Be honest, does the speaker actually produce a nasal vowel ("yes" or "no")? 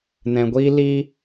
yes